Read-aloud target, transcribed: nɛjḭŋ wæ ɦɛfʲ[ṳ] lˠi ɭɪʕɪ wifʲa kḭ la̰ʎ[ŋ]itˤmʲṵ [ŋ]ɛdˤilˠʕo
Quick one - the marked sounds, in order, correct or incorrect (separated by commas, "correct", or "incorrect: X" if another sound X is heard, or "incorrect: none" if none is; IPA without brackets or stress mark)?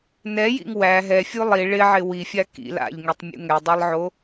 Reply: incorrect: u, correct, correct